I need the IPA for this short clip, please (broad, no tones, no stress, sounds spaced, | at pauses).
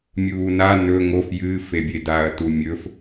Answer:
mʲ uː n a n ɵ ŋ o f j ɨː f e bʲ e d a ɐ̯ t u mʲ ɵ f